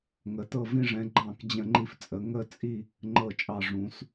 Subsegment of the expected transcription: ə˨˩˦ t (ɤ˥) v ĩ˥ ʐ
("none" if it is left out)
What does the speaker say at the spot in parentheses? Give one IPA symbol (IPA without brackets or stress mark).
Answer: ɤ˥˧